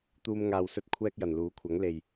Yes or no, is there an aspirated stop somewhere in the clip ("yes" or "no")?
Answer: yes